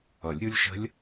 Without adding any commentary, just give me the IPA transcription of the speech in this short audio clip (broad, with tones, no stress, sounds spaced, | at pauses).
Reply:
ʌ˨˩˦ lʲ ɾʲ u˦˥ lʲ ʃ ə̤˦˥ lʲ